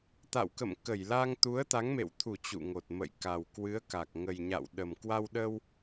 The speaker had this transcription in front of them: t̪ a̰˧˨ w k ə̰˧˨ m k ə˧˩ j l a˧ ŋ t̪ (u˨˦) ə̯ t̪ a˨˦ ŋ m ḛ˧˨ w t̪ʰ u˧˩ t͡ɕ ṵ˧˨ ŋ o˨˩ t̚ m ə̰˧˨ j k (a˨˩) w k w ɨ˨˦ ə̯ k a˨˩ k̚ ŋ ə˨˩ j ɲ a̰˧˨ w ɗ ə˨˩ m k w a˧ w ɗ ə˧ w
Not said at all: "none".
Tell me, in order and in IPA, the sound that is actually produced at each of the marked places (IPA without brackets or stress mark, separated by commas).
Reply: u˨˦, a˨˩